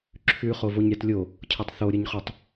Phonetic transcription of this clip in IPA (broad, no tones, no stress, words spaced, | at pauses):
ǁʰʉ χovoɲɾʲatlʲo | cʰɤtˤθoɾʲəɲχʉtˤ